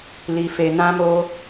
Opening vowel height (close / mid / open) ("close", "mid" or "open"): close